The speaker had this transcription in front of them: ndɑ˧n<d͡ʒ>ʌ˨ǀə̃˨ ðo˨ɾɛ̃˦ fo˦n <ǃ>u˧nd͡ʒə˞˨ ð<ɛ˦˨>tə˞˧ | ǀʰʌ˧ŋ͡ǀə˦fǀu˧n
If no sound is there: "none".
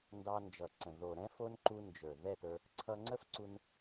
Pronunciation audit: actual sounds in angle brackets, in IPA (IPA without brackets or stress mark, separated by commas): d͡ʒ, ǃ, ɛ˦˨